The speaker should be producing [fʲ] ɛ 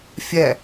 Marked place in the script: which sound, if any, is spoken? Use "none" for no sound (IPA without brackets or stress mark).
fʲ